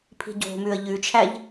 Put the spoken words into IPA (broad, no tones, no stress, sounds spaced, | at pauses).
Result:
pʰ i̤ ɟ o̤ m ʉ ə̯ ʎ ʉ t͡ʃʰ æ ʎ